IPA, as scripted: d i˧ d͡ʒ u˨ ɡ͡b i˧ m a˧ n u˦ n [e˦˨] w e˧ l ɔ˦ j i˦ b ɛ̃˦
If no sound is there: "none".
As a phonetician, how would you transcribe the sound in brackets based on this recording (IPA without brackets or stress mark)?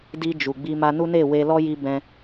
e˦˨